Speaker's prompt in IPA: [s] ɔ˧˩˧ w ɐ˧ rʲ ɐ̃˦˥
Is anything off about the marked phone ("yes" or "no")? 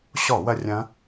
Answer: yes